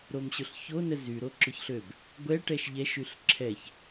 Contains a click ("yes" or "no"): yes